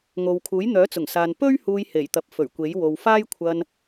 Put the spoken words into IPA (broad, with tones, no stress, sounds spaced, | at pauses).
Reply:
ŋ o˨ w kʰ uː˨˥ j n̪ œː˨˥ t͡s ʊ˨˩ ŋ s aː˨ n p ɵ˥ ɥ h uː˧ j h e˨˩ j t̪ ɐ˨ p̚ f ɵ˨˩ ɥ kʷ e˨˥ j w o˨ w f aː˥ j kʷʰ ɐ˧ n